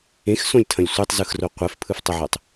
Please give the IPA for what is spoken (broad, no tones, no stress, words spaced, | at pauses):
ẽxsõlʲtʰɐ̃lʲ sʷetˤzɯxro qʷɛfpʰɯftˤəʕɛtˤ